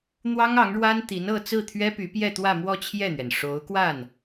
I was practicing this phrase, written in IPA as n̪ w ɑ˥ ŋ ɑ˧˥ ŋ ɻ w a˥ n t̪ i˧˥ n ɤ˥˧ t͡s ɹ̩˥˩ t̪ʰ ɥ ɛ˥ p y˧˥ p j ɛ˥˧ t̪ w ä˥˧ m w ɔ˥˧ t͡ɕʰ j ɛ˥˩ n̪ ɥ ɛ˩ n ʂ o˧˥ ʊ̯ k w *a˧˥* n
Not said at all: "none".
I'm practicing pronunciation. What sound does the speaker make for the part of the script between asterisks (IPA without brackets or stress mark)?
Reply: a˥˩